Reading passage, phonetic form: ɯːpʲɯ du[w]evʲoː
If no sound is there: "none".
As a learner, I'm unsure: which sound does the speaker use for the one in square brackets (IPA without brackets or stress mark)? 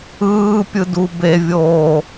b